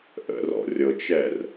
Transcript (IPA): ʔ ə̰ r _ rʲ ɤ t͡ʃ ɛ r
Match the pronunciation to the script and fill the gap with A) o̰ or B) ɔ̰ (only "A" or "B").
B